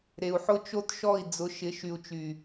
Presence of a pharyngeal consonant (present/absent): present